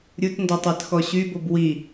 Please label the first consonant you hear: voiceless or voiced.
voiced